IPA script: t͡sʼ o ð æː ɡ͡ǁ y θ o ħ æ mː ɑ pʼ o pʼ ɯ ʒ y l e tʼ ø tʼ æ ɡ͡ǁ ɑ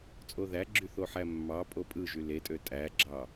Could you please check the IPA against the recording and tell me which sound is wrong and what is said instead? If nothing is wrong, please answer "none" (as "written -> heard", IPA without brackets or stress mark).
æː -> æ